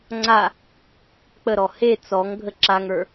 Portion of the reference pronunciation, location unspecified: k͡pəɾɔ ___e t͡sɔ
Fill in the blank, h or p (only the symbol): h